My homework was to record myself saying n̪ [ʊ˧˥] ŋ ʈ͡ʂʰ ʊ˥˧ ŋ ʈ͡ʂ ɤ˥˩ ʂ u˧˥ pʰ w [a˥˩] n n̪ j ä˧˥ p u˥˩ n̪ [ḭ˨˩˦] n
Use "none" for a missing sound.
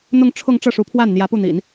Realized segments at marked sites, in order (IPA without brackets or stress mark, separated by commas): ʊ˥˧, a˥˩, ḭ˨˩˦